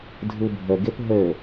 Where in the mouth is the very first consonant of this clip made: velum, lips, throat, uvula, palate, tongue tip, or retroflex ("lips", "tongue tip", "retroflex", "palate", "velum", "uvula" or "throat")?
tongue tip